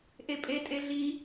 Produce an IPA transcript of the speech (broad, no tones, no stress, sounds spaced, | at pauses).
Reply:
ʔ e pʼ e tʼ e ɮ i